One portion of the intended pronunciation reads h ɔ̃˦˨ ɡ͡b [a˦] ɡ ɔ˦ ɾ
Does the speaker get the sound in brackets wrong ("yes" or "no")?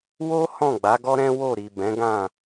yes